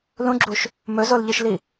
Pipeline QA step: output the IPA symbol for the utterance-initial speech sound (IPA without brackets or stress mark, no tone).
l